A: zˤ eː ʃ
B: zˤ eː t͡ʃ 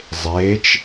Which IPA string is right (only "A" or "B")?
B